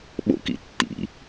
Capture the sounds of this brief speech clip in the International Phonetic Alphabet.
ɓo̰kḭ tːḭ

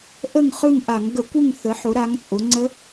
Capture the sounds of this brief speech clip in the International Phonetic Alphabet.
ʔə˦˨ŋχɯ˦˨ŋ ʔa˧˩˧ŋ ɡə˧˩˧kʷɯ˦˨ŋ θə˩˧ħʊ˩˧ ɾa˩˧ŋt͡sʼʊ˩˧ŋ͡ǀə˦˥

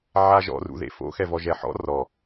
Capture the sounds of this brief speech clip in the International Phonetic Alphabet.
ʕaʒɔ̰rṵ ðḛfo̰xɛvɔ ʒɛħɔ̰ rɔ

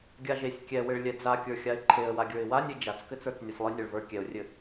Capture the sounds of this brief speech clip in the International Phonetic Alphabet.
ɡʲaʒesʲ kʲɛwɘɭ lʲɛd͡zakʲə˞xʲaɪ̯ ǃʰeə̯waɡʲə˞ɪ̯ wanʲe d͡ʒat͡skɘt͡sə˞t͡s nʲasʲlˠɨ nʲaɭvə˞ kʲɛʊ̯rʲɘ

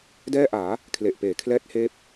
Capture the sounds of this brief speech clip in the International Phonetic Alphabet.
dɛː˥˩ʔaː˩˦ | kʰle˨˩ʔpeː˩˦ kʰlɛː˦˥t̚heː˦˥p̚

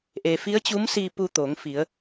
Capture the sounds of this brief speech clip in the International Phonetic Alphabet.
ʔe˩fi˧˥ə̯t͡ɕu˧˥msiː˧ pu˧t̪oː˩˧ŋfi˩˧ə̯

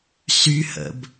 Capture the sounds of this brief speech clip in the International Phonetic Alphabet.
syhə̰b

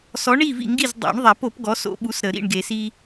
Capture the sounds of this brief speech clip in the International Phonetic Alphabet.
sɔ˨˥ɳi˥˨ vḭ˥˨ŋɡi˥˨z dˤo̰˨˩˦ɳðˤa˨˩˦po˨˩˦p ɡɔ˨˥so̰˦ɓu˨˥sɾə˨˩˦ ɾḭ˥˨ɳɡe˨˩˦si˦

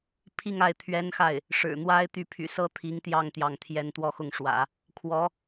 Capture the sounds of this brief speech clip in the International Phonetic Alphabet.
pʰi˥˧ŋa˥˩ɪ̯ t̪ʰɥɛ˥nxa˥˩ɪ̯ | ʂɻ̩˨˩n̪wa˥ɪ̯t̪y˥˩ pʰy̰˨˩sɤ˧˥ t̪ʰi˧˥ŋt̪jɑ˥˧ŋ t̪jɑ˥˩ŋ t̪ʰjɛ˧˥nt̪wɔ˥˧xʊ˥˩ŋʂwä̰˨˩˦ | kʰwɔ˧˥

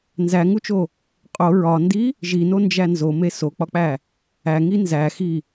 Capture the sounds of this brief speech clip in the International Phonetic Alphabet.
nzæŋut͡ʃo | qʼo ɹɒndi | ʒinond͡ʒæ nzome sok͡pɒk͡pæ | æŋi nzæxi

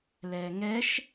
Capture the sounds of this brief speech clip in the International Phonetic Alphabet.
lɛːŋɛʃ

